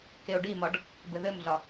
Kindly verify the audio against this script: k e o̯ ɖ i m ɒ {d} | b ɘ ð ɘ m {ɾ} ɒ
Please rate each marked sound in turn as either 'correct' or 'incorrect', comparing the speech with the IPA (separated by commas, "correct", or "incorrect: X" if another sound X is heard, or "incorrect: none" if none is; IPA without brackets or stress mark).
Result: incorrect: ɖ, incorrect: ɮ